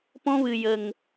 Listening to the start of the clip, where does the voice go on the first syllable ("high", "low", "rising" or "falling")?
high